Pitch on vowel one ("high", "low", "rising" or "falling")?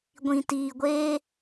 low